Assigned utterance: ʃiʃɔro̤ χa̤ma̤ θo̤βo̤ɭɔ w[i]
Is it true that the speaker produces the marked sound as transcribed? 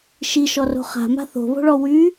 no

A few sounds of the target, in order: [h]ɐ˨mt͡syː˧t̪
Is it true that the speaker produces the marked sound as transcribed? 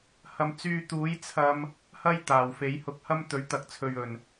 yes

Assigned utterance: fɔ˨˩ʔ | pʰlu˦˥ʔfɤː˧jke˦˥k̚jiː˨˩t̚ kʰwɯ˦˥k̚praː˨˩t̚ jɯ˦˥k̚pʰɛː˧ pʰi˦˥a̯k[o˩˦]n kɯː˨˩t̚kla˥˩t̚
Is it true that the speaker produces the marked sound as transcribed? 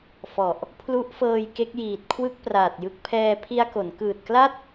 yes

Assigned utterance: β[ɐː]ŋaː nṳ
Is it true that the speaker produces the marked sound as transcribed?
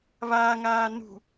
no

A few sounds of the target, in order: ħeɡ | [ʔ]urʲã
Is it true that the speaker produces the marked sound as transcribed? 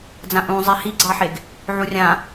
no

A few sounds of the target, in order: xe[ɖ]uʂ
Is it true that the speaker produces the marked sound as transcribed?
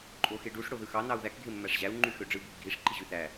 yes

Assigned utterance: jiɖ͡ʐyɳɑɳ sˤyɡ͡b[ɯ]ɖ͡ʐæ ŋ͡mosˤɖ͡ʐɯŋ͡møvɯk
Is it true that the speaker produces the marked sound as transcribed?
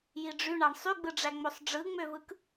yes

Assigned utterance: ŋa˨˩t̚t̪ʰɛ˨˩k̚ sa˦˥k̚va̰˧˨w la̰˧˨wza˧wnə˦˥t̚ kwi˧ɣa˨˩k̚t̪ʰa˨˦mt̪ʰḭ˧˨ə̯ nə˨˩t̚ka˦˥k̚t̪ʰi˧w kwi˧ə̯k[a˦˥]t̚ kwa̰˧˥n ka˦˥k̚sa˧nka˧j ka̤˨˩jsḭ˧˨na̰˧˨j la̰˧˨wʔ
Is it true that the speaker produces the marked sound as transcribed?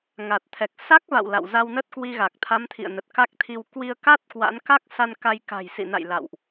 yes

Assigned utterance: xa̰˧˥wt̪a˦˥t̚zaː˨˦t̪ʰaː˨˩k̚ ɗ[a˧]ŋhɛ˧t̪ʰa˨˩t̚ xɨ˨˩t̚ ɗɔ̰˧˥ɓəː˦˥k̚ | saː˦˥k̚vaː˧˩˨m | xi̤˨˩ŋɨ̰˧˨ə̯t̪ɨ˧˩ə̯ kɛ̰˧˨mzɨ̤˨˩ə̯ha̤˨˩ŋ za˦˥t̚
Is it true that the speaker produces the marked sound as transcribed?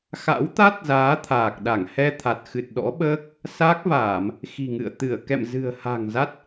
no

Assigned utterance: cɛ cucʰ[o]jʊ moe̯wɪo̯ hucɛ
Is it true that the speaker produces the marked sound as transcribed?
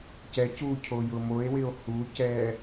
yes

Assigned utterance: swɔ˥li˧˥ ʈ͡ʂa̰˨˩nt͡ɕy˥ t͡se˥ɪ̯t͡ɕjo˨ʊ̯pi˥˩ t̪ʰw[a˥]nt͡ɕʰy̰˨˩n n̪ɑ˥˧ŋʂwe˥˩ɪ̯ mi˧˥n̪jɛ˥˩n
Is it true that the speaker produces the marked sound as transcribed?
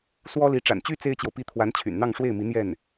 no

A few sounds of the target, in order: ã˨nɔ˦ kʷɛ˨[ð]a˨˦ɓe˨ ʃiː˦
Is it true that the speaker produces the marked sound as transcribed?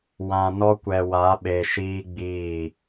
no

